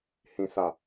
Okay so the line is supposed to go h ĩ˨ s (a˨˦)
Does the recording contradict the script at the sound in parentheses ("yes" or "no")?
yes